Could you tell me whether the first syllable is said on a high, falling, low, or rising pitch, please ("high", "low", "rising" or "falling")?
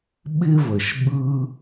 high